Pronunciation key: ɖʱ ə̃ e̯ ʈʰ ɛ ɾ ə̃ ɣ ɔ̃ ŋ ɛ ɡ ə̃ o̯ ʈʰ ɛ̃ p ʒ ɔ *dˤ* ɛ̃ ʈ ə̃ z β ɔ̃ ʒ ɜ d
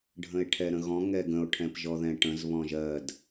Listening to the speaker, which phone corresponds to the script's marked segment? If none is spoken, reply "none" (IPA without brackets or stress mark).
ð